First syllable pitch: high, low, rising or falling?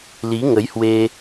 rising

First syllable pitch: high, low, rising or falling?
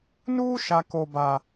high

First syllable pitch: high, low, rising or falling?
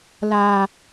low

